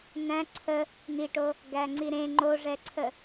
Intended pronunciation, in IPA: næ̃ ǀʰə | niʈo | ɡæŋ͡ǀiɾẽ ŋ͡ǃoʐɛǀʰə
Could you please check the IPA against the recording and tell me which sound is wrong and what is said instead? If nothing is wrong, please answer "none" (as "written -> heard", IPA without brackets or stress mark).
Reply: none